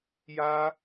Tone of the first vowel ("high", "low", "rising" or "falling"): high